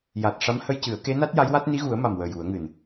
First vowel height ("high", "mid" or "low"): low